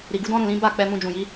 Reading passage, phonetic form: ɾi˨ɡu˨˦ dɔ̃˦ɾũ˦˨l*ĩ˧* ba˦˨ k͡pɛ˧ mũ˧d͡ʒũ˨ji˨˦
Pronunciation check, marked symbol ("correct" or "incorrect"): incorrect